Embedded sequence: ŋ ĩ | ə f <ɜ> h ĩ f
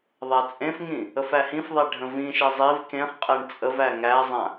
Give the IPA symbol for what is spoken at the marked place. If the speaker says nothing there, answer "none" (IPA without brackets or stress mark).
æ